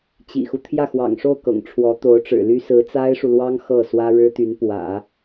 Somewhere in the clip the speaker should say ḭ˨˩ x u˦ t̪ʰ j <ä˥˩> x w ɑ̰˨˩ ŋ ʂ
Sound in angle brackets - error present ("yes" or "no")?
no